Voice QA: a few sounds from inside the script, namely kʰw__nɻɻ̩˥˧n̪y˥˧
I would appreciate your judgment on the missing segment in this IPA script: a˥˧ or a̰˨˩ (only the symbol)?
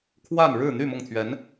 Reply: a˥˧